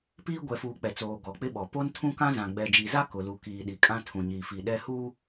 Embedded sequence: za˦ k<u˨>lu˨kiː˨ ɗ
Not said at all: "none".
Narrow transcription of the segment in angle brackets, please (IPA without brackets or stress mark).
ʊ˨